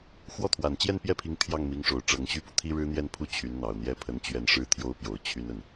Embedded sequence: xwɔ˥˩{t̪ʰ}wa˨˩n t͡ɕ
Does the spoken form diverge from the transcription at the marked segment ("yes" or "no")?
no